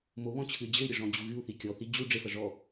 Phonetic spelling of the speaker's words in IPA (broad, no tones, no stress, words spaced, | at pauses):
moβɔ̃ t͡ɕʰɨy̯d͡ʑɘy̯ɾʲɘ ʐɔ̃d͡ʑuɣɨu̯θi kʲɔθi d͡ʑu ɖ͡ʐefɐ ʐɔ